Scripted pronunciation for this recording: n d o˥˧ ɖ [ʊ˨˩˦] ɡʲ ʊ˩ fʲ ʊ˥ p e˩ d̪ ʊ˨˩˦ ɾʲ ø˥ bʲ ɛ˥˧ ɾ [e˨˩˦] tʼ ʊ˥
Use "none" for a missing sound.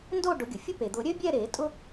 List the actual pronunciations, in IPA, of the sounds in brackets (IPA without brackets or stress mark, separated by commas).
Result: ʊ˨˩˦, e˨˩˦